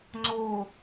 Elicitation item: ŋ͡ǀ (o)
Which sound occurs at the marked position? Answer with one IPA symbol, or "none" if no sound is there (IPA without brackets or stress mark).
o